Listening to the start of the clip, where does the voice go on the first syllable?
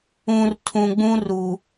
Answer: low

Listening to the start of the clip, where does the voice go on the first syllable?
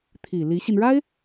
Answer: low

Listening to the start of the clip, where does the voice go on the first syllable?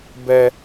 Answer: high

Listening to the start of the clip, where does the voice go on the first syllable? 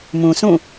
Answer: low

